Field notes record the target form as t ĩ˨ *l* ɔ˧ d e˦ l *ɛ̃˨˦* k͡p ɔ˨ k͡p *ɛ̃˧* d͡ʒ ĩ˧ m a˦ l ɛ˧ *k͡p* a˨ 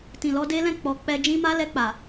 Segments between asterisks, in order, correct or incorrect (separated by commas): correct, incorrect, incorrect, correct